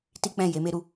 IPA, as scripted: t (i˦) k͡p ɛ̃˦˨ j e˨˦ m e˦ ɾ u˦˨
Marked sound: correct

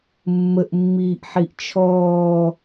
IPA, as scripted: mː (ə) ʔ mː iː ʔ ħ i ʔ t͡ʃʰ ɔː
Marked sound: correct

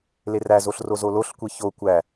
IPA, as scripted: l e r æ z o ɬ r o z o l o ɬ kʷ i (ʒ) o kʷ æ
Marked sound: incorrect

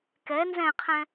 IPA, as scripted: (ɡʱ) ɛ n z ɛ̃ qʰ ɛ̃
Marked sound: incorrect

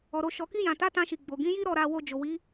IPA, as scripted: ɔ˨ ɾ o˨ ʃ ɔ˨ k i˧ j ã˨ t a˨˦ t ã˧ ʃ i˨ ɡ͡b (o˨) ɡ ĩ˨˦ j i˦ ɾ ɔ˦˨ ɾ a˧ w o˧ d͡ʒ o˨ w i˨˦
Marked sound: correct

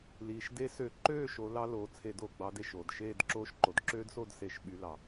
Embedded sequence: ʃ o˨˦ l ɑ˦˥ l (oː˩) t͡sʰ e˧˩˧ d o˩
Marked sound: incorrect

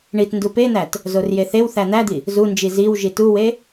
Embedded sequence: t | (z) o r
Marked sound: correct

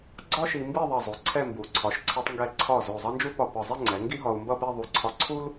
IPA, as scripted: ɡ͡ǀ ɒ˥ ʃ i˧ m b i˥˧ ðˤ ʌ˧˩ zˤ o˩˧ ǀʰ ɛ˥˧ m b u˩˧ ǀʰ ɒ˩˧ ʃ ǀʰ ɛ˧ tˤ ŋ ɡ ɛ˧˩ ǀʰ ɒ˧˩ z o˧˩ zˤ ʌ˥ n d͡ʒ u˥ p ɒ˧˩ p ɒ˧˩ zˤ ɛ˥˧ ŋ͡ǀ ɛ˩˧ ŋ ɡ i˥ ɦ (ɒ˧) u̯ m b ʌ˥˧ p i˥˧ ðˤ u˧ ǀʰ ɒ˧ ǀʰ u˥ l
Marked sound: correct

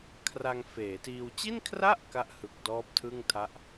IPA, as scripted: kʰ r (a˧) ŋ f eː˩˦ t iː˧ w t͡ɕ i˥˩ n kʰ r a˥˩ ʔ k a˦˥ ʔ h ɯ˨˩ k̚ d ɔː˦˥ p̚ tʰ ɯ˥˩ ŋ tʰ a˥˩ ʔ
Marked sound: correct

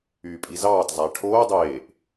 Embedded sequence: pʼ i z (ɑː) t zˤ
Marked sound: correct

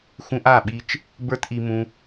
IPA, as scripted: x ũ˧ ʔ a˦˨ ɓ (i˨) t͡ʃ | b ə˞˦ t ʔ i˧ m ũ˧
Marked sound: incorrect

